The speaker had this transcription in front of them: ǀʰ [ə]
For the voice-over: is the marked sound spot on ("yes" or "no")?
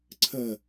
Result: yes